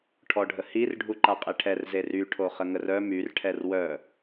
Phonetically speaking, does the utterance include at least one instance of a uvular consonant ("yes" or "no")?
yes